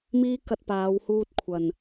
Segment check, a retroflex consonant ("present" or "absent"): absent